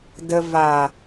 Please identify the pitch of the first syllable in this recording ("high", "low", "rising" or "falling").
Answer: low